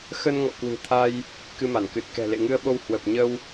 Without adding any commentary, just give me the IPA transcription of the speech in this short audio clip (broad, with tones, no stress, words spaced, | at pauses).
xə˧nŋɔ̰˧˨kwɨ̤˨˩t̪ʰa˧j | kɨ˧ma˧˩nkɨ˨˩t̚ kɛ̤˨˩lḛ˧˨ŋɨ˧ə̯ɓo˧w hwə˨˩p̚ ɲə˧w